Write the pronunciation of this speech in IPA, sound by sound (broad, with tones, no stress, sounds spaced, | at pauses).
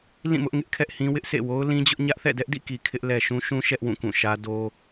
l ĩ˦˨ m ʊ˦ ʔ ŋ ɪ˦ ʔ kʰ ɛ˦ ʔ h ĩ˦ w ɪ˦ ʔ s ḛ˦˨ w o˦ ʊ̯ l ĩ˦ d͡ʑ ʊ˦ ʔ ɲ ä˦ ʔ θ ɛ̰˦˨ d ɛ˦ ʔ d ḭ˦˨ k i˨ kʰ ɪ˦ ʔ l ɛ˨ ʃ ũ˦ ʃ ũ˦ ʃ ɛ˦ ʔ w ũ˦˨ k ũ˦˨ ʃ ä˦ d o˦